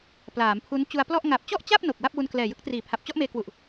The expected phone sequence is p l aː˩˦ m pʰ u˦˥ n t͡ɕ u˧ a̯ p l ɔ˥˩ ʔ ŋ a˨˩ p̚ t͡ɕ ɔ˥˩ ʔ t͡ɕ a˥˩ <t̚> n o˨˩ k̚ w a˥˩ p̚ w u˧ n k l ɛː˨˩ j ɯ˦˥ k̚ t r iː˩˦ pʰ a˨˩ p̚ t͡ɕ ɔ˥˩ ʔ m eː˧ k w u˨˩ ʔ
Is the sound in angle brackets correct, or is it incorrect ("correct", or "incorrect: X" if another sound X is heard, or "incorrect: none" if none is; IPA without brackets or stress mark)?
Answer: incorrect: p̚